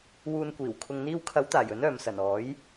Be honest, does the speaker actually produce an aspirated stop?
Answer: yes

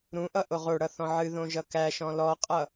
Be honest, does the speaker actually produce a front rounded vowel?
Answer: no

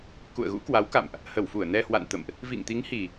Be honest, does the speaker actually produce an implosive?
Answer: no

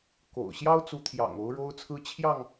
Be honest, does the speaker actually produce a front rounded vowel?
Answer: no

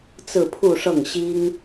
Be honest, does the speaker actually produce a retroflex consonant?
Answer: yes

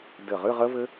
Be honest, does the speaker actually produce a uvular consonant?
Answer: yes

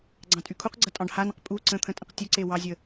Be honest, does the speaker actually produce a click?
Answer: yes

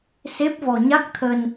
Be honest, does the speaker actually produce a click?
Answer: no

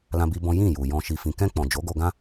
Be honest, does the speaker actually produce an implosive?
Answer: no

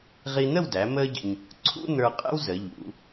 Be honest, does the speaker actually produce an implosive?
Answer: no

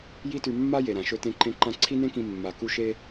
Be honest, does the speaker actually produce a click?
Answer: yes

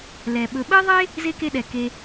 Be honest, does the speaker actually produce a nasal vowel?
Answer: no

